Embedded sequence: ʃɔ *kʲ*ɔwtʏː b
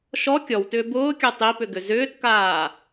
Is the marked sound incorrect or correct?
correct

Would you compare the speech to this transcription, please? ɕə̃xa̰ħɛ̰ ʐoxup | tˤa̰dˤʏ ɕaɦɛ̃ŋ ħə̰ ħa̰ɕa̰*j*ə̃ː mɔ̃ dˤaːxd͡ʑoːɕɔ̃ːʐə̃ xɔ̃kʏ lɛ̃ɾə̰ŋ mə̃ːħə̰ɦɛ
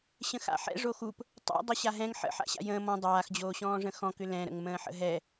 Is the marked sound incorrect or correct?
correct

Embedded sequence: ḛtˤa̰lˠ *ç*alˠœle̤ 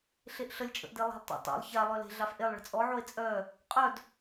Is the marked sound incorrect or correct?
correct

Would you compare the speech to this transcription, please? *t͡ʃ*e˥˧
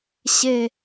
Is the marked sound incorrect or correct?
incorrect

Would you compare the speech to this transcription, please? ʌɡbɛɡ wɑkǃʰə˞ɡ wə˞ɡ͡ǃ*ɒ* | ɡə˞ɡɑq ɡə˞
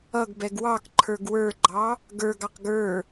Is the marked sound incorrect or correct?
incorrect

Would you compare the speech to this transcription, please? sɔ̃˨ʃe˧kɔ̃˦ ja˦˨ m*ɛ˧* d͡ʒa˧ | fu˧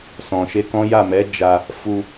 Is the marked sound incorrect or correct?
incorrect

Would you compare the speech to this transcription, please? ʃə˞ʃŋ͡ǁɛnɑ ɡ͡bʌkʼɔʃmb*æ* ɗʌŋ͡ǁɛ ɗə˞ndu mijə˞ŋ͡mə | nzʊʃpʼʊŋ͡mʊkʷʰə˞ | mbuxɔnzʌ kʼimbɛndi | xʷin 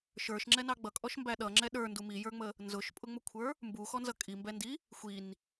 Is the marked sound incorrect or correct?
correct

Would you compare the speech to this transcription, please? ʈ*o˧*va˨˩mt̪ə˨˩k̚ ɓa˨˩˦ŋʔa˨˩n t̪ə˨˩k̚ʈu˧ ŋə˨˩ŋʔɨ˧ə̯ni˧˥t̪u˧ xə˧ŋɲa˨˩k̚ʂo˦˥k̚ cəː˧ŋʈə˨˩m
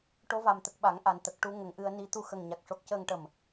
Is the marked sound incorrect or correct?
correct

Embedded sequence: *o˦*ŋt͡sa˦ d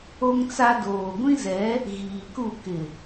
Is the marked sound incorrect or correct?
correct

